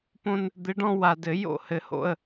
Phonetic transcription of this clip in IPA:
põ˧n | d̪ɪ˨˥ɖɔ̃˧ wa˨˩dɘ˨˩˦ jo̰˥˨hɘ˨˩˦ho̰˥˨ə̯

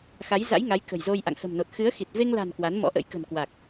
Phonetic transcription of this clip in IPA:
xa˨˦jza̰˧˥jŋa˨˦j kə̤˨˩jzo˧j ʔa̰˧˨ŋhə̤˨˩mno˨˩t̚xɨ˨˦ə̯ xi˨˩t̚ ve˧ŋla̤˨˩n kwa˨˦nmɔ̰˧˥ʔə̰˧˥j kə̤˨˩nkwa˨˩k̚

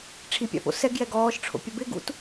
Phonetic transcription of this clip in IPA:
ʈ͡ʂʰipʲa̰po̰ sɛɡjɛ ɡɔːʃʈ͡ʂʰo̰pʲa bɪɡṵt

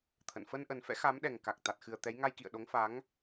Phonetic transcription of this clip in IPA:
t̪ʰə̰˧˨n fə˧nʔə˨˩n fɛ̰˧˥xa˨˦mɗɛ˨˩ŋka˨˩k̚ t̪a˨˩t̚xɨ˨˩ə̯t̪ɛ˨˦j ŋa˧jkḭ˧˨ə̯ ɗo˨˦ŋfa˨˦ŋ

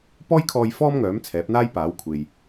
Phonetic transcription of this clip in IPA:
pɔː˥jkʰɔː˧j fɔː˥mŋœː˨˥m t͡sʰɛː˨˥p̚ n̪aː˥jpaː˨˥w kʷʰe˨j

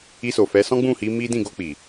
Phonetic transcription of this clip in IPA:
i˧ so˨fɛ˨˦ sɔ̃˦ɡ͡bũ˦˨hi˨˦ mi˦ dĩ˦˨ɡo˧k͡pi˨

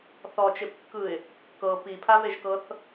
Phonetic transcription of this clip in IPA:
θɔt͡ʃepkːɯɪ̯ | kɤ pipʰaveʒkɤθ

